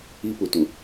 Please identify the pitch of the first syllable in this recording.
high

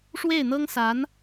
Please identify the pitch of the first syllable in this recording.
falling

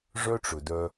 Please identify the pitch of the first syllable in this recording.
high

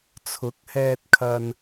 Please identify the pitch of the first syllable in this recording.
rising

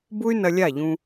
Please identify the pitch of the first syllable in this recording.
high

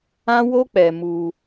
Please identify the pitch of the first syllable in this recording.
high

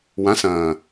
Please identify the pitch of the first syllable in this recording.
rising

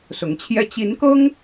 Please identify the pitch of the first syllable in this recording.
rising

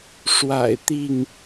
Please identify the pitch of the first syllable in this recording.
low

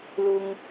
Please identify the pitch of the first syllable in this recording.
high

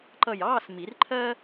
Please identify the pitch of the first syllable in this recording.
falling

